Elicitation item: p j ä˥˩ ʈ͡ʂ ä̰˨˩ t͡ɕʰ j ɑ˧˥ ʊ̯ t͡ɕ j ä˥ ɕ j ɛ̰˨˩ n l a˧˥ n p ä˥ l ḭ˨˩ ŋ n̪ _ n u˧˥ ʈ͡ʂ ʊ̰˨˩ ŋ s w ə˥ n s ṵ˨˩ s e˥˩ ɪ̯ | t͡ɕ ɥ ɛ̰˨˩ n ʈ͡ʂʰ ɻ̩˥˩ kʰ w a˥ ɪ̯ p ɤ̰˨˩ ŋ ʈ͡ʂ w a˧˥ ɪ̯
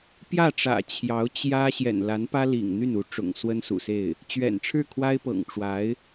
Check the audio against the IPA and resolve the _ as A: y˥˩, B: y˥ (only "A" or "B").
A